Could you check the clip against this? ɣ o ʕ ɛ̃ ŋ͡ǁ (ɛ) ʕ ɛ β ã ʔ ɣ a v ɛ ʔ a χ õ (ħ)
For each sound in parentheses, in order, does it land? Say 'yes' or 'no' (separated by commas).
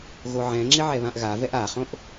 no, no